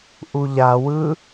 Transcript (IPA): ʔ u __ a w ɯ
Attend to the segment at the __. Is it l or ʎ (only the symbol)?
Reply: ʎ